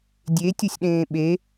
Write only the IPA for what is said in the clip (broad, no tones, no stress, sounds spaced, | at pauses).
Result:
dʲ e tʲ o sʲ ɗ ẽː ɓ e